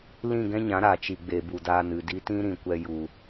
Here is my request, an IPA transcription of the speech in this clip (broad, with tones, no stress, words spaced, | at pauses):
lĩ˦˨ɡɛ̃˦ɲã˨˦ ɾa˨ t͡ʃi˨ɡ͡be˨ bu˨daː˧nɨ˨ di˧tĩ˦ ɾĩ˨kʷɛ˧ ju˨